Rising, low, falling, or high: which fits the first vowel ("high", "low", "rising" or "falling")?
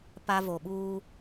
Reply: high